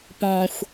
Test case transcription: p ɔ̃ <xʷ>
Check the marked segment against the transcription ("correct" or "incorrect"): correct